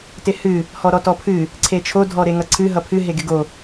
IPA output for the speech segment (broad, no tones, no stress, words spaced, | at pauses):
tɪhɨ | hɔɾɔtɔpʰɨ | ǀʰet͡ʃʰo dʱɔɾeŋʌǀʰɨ ɦʌpʰɨ ɦeɡɪɡo